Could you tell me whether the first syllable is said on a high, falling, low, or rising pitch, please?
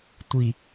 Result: low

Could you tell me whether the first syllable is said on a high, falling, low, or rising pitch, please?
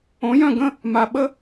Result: rising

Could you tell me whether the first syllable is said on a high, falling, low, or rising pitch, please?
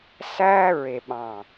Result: high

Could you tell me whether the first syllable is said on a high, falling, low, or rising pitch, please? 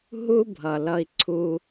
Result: high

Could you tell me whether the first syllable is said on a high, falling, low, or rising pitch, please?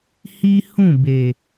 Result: high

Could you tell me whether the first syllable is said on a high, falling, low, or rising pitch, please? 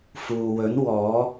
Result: low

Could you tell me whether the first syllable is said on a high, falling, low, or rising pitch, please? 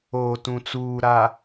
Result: low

